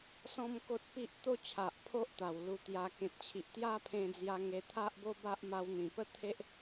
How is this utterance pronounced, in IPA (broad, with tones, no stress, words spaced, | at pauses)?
sɔ̃˦mko˦t̚pi˦ʔ t̪o˦t͡ɕʰa˨ʔ pʰo˦ʔt̪a˨˩w lu˧t̪ja˧ kẽ˨t̚t͡ɕʰi˨ʔ t̪ja˦pʰẽ˧d͡zja˧ ŋe˧t̪ʰa˦ʔbo˦ba˦ʔ ma˧wn̪ĩ˨˩pə˦ t̪ʰe˦ʔ